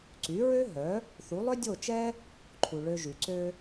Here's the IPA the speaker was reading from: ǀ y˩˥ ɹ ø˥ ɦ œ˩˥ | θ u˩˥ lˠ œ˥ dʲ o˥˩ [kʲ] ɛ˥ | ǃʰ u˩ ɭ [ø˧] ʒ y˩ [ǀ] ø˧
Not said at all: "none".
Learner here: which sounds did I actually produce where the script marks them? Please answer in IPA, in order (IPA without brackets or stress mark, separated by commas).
t͡ʃ, ø˧, ǀ